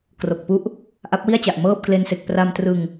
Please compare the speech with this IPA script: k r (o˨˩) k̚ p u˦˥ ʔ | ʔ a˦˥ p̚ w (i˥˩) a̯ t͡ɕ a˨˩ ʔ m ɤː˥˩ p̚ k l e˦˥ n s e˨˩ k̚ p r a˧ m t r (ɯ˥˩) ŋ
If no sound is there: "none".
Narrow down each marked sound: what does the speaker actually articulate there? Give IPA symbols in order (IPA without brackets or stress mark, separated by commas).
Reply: o˨˩, i˥˩, ɯ˧